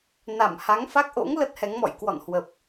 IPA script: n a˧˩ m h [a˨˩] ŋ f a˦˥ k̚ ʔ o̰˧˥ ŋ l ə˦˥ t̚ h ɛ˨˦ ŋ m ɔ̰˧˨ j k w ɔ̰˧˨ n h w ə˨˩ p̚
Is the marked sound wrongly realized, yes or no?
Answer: yes